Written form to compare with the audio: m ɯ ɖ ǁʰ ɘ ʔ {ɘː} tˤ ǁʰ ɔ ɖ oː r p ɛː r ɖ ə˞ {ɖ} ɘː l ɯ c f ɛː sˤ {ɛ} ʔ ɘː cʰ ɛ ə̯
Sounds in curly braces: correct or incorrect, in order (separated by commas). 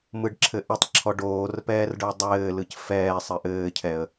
incorrect, incorrect, incorrect